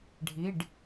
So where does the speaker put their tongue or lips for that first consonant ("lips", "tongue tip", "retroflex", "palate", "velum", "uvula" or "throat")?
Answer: retroflex